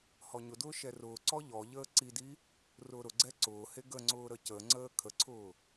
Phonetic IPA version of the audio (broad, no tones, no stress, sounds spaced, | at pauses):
h ɔ ɲ ʊ d ʊː ʃ ɛ r ʊː ǀ ɔ ʎ ɔ ʎ əː ǀ i d i | r ʊː ɾ ʊ ɡ͡ǀ ɛ ǀ ʊː h e ɡ ə ŋ͡ǀ ʊː ɾ ə c ə ŋ͡ǀ əː kʰ ə ǀʰ ʊː